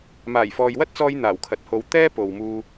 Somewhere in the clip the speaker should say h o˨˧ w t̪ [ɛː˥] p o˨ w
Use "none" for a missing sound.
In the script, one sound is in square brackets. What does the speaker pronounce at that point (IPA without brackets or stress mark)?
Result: ɛː˥